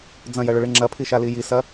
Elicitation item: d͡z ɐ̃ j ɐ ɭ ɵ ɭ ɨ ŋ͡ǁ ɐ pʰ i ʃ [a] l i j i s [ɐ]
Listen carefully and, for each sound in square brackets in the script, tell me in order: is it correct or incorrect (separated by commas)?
correct, correct